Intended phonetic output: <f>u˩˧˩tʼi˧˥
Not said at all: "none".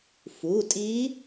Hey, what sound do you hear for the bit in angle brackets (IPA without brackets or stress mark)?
f